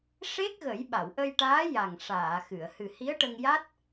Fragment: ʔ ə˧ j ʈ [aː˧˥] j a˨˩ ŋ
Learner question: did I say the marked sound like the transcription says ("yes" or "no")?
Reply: yes